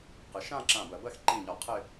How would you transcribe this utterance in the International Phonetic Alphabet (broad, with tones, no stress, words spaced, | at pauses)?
qɪ˩˧ʃã˥˧ ǁã˧˩bɜ˧˩˧bɜ˥˧x ǃĩ˧˩ɲɒ˧˩˧ qʰɪ˥˧